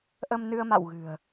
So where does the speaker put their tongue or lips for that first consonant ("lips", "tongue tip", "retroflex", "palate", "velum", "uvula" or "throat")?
throat